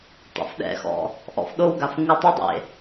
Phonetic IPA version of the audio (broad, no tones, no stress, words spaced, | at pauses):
tˤḛfɗɛ̰xɔ̰ | ʔɔ̰fɗowɡaf ŋutˤʊdˤḛ